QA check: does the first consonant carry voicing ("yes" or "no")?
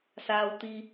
no